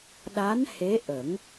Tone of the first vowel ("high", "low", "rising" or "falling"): rising